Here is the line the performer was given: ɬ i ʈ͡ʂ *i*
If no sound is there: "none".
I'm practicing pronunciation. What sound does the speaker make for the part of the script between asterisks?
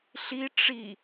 i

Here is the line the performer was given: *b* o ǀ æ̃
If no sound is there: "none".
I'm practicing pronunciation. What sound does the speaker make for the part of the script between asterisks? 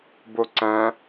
b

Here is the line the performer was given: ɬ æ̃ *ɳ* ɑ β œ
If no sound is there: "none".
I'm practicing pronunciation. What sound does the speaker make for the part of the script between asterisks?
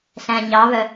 ɲ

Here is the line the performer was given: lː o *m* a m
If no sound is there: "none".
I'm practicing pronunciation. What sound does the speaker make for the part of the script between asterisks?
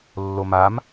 m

